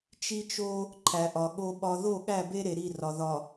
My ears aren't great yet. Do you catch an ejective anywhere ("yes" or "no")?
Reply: no